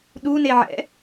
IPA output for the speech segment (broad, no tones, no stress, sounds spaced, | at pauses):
ɗ u n e ʕ ɛ̰